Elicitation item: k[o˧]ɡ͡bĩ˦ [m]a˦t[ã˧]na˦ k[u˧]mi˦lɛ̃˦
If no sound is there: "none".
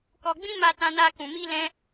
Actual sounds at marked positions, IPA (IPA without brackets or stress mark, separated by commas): ɔ˧, m, ã˦, ũ˧